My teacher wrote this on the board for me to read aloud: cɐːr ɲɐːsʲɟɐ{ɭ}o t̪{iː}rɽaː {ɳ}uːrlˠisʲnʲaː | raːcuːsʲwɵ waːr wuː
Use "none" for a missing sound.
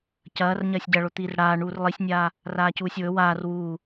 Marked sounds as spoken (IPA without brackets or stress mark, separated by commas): ɭ, iː, ɳ